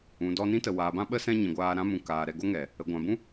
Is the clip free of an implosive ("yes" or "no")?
no